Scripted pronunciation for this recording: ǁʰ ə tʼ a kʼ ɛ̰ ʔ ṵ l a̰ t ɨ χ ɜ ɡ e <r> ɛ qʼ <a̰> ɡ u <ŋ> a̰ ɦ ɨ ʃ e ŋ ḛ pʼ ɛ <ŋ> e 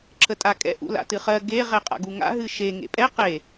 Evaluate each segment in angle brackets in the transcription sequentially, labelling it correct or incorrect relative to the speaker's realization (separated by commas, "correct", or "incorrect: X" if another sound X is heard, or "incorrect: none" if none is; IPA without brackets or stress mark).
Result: incorrect: ʁ, correct, correct, incorrect: q